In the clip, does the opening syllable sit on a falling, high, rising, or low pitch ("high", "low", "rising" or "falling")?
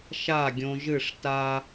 falling